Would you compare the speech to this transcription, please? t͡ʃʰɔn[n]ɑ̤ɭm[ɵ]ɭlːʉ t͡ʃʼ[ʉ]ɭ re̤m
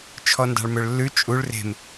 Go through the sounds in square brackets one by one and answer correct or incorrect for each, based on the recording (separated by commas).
incorrect, correct, incorrect